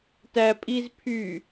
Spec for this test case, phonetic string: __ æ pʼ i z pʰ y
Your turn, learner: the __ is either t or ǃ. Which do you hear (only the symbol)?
t